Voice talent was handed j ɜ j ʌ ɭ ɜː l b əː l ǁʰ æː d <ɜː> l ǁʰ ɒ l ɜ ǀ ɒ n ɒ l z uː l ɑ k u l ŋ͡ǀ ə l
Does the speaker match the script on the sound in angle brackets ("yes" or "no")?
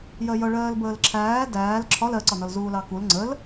no